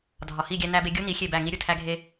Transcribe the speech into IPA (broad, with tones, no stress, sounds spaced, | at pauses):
dʱ ɒ˨ h i˦˨ ɡʲ æ˦ n æ˦ b e˦ ɡʲ u˦ n i˨˦ xʲ e˦˨ b æ˦˨ ŋ i˦ ɾʲ u˨ tʰ æ˦ ɡʱ e˦